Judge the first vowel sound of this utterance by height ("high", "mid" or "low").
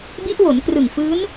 high